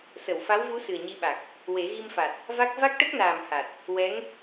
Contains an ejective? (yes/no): no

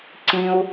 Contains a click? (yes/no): yes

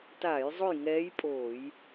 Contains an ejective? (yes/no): yes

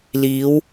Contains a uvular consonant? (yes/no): no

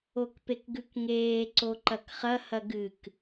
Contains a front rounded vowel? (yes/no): no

